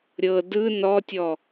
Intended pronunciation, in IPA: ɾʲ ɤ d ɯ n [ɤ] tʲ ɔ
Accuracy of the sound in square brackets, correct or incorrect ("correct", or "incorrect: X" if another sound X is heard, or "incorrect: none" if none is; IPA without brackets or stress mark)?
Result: incorrect: ɔ